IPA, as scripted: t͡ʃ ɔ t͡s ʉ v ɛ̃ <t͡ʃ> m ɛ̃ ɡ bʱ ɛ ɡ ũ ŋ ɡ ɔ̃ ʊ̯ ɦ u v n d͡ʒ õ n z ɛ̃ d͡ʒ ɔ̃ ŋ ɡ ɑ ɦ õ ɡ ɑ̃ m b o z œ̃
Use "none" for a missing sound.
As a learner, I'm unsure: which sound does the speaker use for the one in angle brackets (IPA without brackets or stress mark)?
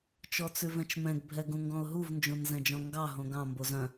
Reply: t͡ʃ